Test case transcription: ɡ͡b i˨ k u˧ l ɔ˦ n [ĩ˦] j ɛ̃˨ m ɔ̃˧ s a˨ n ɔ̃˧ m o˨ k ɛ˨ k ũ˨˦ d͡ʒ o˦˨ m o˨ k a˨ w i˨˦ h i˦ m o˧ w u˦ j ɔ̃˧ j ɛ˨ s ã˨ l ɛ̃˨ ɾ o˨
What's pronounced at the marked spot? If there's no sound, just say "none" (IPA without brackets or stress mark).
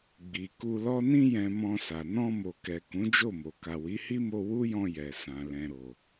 ĩ˧